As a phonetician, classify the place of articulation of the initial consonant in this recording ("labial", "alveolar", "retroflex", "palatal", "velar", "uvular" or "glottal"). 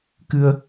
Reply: velar